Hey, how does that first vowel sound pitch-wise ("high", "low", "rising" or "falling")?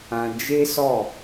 low